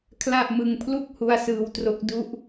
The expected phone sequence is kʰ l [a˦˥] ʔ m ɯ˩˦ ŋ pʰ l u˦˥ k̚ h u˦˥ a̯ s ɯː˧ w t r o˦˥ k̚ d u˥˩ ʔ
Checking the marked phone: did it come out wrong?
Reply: yes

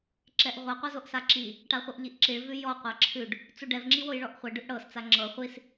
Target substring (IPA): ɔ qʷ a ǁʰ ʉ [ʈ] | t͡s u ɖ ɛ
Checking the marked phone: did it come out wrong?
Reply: yes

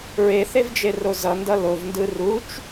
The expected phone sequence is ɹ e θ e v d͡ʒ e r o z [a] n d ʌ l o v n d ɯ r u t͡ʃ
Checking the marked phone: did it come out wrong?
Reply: yes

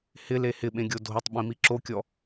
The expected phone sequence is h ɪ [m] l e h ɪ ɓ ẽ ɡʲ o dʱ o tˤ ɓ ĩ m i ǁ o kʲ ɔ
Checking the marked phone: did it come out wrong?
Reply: yes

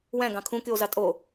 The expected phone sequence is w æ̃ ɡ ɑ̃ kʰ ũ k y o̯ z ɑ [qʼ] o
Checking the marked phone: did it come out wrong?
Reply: yes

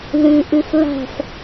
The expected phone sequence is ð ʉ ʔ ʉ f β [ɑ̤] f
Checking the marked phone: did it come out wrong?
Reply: yes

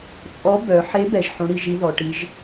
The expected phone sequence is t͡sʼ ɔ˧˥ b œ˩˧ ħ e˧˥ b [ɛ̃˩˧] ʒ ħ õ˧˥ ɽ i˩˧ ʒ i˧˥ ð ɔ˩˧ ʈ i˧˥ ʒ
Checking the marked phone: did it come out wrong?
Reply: yes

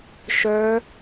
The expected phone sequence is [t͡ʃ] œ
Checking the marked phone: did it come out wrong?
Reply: yes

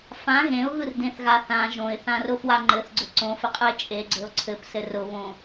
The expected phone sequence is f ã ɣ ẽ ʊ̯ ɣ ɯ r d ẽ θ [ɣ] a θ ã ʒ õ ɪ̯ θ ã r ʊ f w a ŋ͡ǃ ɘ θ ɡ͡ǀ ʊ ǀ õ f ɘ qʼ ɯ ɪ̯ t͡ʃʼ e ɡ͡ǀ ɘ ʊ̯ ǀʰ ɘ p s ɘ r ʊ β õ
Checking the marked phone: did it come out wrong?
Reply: no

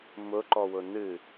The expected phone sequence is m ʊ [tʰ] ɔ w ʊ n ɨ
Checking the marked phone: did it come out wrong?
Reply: yes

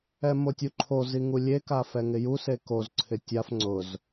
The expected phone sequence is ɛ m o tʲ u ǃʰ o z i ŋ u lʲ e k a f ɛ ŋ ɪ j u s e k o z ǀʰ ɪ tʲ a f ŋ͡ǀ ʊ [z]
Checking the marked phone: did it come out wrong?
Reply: no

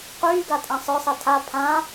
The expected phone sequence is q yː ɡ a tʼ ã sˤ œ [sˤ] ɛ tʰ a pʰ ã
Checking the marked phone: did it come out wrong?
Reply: no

